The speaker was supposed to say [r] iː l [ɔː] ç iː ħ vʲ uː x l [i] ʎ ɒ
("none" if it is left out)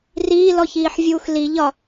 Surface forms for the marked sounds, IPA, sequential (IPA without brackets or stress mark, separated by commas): r, ɔ, i